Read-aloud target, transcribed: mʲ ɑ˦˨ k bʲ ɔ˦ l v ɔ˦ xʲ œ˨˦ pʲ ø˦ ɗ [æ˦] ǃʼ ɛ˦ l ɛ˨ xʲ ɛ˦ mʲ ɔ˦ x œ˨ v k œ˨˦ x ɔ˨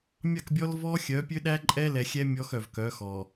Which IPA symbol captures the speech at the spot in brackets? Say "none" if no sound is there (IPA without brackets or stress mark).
æ˦